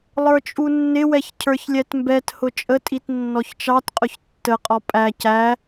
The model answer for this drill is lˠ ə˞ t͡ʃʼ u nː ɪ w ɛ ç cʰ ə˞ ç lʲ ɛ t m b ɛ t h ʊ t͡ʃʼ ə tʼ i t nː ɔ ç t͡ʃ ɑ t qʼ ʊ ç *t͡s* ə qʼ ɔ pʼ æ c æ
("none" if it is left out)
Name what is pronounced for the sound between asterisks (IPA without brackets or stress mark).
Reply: tː